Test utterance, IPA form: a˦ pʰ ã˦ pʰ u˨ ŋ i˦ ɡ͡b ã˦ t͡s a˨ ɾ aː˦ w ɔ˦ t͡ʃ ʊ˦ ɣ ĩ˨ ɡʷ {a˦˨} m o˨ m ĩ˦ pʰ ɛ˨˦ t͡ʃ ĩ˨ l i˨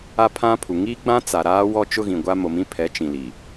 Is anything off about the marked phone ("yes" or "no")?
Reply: yes